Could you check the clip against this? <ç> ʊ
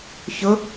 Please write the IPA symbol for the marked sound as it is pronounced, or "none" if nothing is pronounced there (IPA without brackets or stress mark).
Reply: ç